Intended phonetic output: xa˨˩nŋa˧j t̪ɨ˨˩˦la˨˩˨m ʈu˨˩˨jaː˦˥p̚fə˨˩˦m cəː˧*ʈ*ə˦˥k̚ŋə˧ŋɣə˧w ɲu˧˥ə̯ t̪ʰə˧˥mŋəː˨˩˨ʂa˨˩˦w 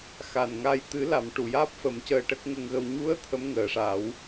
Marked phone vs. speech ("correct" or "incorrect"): correct